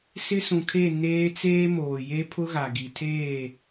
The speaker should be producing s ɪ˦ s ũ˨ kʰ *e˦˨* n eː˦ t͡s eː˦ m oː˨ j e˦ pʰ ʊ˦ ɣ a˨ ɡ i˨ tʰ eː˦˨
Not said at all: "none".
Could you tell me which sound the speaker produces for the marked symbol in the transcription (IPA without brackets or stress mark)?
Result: e˦˨